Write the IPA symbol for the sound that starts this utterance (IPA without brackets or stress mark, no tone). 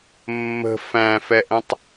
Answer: mː